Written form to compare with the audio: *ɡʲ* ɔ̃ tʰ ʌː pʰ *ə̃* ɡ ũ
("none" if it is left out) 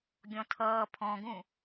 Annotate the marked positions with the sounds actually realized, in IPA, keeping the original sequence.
ɡʲ, ɔ̃

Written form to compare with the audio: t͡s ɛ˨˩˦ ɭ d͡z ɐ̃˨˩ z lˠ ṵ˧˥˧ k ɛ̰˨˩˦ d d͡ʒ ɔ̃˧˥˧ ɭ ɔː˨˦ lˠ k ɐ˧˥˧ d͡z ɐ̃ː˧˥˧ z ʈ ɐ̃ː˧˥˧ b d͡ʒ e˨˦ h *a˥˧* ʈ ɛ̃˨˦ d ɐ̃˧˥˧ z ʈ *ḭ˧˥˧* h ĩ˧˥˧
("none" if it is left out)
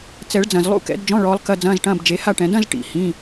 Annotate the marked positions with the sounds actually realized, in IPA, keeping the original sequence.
a˥˧, ḭ˨˩˦

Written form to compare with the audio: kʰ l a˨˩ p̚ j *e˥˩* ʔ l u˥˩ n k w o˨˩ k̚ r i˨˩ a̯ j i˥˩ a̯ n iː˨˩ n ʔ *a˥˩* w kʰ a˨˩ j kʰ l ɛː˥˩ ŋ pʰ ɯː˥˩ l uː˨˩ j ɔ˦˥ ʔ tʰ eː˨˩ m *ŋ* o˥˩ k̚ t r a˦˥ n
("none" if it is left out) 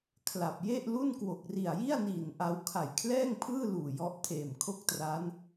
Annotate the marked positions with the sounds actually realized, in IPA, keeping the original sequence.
e˥˩, a˧, kʰ

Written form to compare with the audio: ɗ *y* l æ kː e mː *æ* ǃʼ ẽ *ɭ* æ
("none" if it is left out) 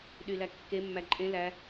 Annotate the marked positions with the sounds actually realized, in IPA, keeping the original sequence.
y, æ, l

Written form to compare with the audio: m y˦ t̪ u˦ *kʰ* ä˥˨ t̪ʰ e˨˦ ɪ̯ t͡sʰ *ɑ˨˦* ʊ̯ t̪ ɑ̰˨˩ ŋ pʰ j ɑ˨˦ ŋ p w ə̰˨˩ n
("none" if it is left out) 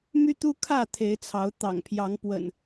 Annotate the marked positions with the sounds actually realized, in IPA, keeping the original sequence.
kʰ, ɑ˨˦

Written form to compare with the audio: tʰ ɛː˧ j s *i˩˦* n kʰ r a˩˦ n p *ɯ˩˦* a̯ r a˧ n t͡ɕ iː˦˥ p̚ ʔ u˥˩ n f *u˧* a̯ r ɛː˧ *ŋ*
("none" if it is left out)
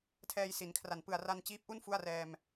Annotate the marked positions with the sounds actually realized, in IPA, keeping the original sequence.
i˩˦, ɯ˨˩, u˥˩, m

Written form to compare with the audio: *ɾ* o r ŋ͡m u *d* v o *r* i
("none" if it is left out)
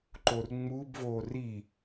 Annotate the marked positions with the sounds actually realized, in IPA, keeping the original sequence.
ǃ, b, r

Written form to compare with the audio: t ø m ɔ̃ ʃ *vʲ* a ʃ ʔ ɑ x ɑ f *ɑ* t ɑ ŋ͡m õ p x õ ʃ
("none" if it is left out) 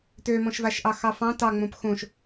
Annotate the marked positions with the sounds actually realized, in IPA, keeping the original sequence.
v, ɑ̃

